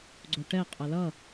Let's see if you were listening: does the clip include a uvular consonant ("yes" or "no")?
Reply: yes